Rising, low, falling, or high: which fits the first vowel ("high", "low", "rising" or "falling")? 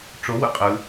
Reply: rising